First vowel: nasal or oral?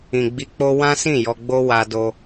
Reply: nasal